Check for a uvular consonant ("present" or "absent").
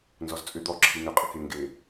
present